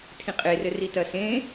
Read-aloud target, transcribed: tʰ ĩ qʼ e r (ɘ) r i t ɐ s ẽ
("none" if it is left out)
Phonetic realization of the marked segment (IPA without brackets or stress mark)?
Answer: ɘ